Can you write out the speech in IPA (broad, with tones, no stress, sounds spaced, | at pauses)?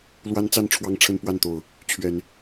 l w a˦ n t͡s a˥˨ n ʈ͡ʂʰ w ɑ˦ ŋ ʈ͡ʂʰ ə˦ n p w a˥˨ n t̪ o˨˩ ʊ̯ | t͡ɕʰ ɥ ɛ˨˦ n